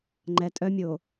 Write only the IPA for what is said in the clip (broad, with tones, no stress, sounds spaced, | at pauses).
ŋ͡ǃ ɛ˨ tʼ œ˦ mʲ o˨